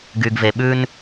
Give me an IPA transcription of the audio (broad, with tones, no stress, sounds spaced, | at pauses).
ɡ y˨ ɡ v e˨ ɓ ʉ˦ n